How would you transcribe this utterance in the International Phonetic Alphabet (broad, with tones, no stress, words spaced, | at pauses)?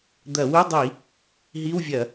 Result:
d̪ɐ˧˩˧wu˧˥˧dˤi˧˩˧ | ɦi˧˥˧wvʲɐ˧˩˧